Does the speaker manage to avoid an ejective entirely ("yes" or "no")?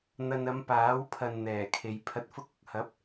yes